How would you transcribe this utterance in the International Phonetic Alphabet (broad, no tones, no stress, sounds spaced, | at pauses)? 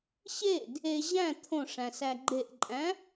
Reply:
ɕ e d | e ʑ æ̃ t̪ʰ õ ʂ æ̃ s æ ɡ͡ǃ e ʔ ǃʼ æ̃